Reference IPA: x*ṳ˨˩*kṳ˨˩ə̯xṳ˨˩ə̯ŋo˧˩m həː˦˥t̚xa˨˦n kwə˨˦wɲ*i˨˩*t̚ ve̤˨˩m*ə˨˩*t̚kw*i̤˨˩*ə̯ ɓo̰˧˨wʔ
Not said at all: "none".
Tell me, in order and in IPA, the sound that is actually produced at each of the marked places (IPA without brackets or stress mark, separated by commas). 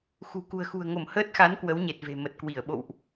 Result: ṳ˨˩, e˨˩, ə˨˩, i˧˩